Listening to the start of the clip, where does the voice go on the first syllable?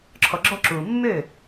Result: low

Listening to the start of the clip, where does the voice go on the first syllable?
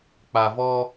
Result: low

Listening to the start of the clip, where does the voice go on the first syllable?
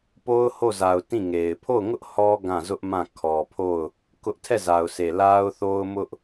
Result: high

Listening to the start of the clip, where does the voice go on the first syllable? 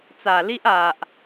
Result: low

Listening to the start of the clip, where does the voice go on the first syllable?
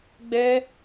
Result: high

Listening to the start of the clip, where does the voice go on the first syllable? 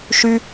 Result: high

